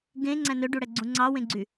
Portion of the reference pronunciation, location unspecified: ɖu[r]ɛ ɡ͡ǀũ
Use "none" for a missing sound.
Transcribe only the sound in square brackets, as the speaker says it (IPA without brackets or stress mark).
ɽ